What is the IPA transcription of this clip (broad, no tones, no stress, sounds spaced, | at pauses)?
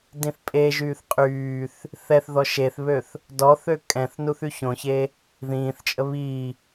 d ĩ θ pʼ e ʒ yː θ qʼ yː θ | θ ɛ θ ð ɔ ʃ e θ β ø θ | d ɔ θ ø kʼ ɛ̃ θ n u θ y ç õ ç e | ð ĩː θ t͡ʃʼ ə β i